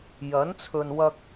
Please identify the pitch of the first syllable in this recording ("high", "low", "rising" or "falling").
rising